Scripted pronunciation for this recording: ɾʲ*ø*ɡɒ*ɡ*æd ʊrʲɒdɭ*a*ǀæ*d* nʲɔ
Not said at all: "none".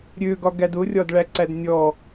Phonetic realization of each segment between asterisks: ø, ɡ, æ, d

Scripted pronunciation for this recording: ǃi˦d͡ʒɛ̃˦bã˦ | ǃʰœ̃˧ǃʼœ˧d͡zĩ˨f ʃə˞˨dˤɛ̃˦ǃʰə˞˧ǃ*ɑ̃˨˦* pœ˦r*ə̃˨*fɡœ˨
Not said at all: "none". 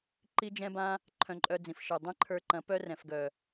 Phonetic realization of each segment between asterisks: ɐ̃˨˦, ɛ̃˨

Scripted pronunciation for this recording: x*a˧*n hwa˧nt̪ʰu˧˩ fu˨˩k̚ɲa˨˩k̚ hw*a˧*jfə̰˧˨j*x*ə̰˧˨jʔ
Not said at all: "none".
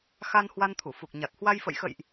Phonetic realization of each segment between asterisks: a˧, a˧, x

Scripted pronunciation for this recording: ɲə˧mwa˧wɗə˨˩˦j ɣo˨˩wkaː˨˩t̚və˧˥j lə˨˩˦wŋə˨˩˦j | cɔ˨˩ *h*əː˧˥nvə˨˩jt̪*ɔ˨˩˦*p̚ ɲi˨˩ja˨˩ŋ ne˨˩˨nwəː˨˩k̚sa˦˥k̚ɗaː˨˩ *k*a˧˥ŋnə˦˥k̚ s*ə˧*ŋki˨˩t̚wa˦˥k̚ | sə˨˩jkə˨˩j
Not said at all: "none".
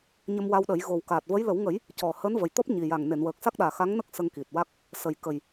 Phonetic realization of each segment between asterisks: h, ɔ˦˥, x, ə˧

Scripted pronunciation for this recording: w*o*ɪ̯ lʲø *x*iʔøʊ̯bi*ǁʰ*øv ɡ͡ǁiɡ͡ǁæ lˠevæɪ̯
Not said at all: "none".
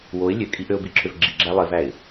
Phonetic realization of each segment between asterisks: o, kʼ, ǁʰ

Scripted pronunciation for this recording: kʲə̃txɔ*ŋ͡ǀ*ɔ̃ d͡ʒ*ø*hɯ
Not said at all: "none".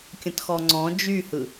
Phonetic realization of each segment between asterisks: ŋ͡ǀ, y

